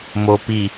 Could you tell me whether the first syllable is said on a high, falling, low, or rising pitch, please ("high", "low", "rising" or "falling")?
low